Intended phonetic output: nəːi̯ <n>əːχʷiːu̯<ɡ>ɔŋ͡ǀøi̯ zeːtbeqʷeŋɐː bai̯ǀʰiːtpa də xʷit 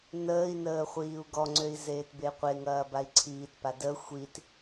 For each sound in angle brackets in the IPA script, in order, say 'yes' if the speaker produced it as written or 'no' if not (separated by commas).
yes, yes